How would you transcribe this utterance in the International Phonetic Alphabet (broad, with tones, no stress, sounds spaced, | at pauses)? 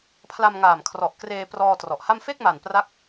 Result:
pʰ l a˧ m ŋ aː˨˩ m kʰ r ɔ˨˩ ʔ k r eː˧ p r ɔː˧ t r ɔ˨˩ ʔ h a˥˩ m f e˥˩ k̚ m a˨˩ n p r a˥˩ k̚